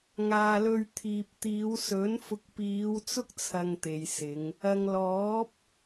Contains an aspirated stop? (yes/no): yes